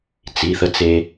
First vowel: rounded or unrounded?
unrounded